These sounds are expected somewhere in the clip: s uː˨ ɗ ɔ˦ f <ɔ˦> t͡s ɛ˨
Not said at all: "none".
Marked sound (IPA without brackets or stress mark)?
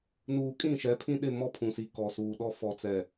ɔ˨